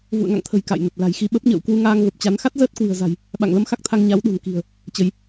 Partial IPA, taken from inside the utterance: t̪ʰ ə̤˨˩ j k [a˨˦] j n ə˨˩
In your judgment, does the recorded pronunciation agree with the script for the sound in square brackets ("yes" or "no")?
no